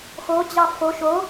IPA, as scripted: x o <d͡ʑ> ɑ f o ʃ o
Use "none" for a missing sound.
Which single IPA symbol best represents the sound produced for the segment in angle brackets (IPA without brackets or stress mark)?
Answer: d͡ʑ